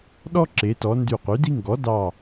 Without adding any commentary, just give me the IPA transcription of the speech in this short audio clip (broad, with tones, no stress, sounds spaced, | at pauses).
ɗ ɔ˥ ǁ e˩˧ t ɔ˩˧ n d y˧˩ q y˩˥ d i˥ ŋ ɡ ɔ˩˥ d ɑ˧˩